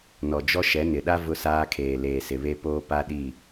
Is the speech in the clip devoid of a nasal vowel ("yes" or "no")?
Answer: yes